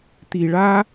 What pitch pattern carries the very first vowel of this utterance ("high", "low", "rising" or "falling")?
low